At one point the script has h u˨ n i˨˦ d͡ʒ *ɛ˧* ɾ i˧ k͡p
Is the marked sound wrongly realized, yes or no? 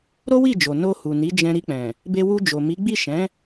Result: yes